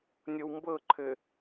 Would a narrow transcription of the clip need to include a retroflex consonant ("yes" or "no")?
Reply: no